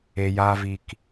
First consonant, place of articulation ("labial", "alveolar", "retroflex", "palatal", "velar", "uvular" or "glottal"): palatal